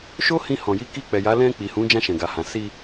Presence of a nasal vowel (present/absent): present